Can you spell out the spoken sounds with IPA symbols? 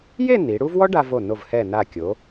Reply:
je˥˧ ni˩˧ɽu˥v wɔ˥ɖa˧vo˧˩ no˧˩vhɛ˧˩na˧˩ kʲo˩˧

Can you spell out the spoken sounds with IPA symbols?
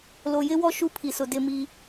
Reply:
lo˨jɪ˦wɔ˦ ʃu˦ pʰi˨sʊ˨ dɪ˦˨mi˦

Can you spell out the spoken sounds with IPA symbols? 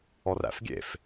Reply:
ɔræ̰fɡʲḛf

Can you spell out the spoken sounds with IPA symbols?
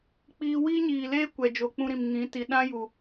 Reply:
k͡piː˧wiː˦ɲiː˨leː˦ kʷɛ˨ d͡ʒo˨k͡pũ˧ɾĩ˨m ŋĩ˨˦ ti˨ɗã˦ju˨

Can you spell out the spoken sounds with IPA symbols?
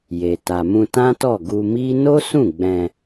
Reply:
je˨ ta˨mũ˧ tã˦tɔ˦˨ ɡu˧mi˦ no˦ sũ˦˨ɡ͡bɛ̃˧

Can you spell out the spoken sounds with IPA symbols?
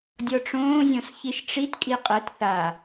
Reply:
dʲɔʈ͡ʂõː zʲɔ̃sçiʃʈ͡ʂit kʼiqʼət θa

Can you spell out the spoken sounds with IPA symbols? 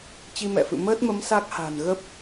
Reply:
t͡ɕi˧mɛ̰˧˨fɨ̰˧˨ məː˦˥t̚mə˨˦m sa˦˥k̚ha̤˨˩n ɣə˦˥p̚

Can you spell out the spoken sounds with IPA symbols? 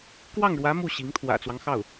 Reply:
kwɑ˥˩ŋɻwä˧˥ mu˥˩ɕi˧˥ŋ t̪ʰwä̰˨˩t͡swɑ˦ŋxɑ˥˩ʊ̯

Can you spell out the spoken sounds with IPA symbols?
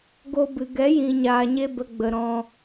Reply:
ɡo˧bɨ˨ ɡɛ˨˦jĩ˨ɲaː˨ɲe˧ bə˧ɡ͡bə˨ɾɔ̃˧

